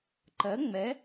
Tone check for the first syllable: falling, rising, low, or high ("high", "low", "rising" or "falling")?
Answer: rising